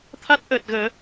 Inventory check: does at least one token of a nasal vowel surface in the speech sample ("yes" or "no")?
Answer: no